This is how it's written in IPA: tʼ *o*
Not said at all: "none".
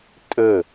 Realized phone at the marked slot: ɵ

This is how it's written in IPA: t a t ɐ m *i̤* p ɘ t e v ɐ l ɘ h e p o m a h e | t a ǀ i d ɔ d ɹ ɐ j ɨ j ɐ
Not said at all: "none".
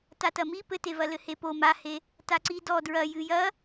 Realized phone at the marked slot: i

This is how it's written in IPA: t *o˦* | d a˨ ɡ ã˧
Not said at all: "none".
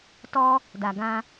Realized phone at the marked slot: ɔ˦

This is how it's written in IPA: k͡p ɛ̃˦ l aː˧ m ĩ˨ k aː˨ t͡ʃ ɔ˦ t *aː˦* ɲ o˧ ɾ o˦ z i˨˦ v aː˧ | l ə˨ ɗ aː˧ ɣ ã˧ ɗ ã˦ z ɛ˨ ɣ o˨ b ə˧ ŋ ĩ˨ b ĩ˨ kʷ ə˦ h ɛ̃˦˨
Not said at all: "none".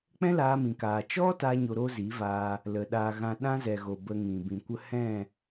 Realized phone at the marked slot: aː˦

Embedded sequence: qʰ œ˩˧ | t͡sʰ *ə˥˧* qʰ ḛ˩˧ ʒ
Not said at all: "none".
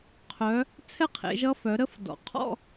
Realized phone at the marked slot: ɛ˥˧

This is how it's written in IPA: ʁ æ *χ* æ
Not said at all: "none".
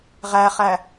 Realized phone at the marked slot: χ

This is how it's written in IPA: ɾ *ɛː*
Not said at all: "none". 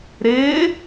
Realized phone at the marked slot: ɪː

